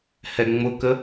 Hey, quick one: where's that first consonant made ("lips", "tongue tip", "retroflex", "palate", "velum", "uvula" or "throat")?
throat